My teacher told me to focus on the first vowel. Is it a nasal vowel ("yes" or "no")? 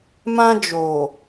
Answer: yes